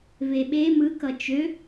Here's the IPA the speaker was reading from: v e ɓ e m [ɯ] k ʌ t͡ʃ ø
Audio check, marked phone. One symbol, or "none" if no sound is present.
ɯ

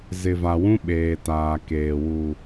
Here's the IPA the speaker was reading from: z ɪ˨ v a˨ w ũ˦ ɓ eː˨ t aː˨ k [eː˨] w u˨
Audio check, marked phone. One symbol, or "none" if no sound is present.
eː˨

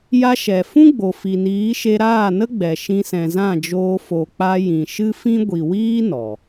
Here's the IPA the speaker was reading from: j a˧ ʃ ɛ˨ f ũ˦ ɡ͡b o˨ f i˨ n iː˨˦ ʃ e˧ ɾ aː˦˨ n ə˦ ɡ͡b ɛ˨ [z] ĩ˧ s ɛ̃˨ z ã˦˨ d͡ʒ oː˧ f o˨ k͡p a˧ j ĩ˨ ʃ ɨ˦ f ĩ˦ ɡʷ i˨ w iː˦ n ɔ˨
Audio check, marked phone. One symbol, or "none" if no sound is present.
ʃ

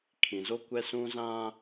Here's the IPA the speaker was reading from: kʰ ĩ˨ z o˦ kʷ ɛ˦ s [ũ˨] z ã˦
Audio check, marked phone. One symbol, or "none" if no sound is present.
ũ˦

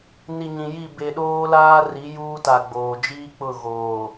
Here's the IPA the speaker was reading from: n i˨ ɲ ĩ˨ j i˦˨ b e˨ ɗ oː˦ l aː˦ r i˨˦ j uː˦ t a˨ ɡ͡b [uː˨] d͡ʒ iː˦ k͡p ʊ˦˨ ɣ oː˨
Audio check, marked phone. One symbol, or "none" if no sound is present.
oː˨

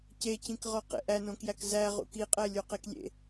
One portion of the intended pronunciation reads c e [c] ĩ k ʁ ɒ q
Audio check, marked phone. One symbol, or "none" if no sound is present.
c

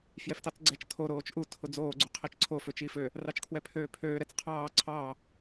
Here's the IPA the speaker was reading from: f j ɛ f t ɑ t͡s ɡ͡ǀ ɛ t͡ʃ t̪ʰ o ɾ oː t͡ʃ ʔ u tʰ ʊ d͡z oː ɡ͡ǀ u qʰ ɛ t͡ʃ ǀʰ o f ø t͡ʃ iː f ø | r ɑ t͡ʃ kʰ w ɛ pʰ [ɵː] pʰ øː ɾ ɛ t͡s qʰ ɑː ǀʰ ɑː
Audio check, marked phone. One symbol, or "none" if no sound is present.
øː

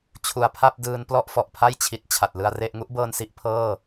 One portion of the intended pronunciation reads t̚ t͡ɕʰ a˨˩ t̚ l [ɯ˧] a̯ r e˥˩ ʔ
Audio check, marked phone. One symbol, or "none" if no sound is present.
ɯ˧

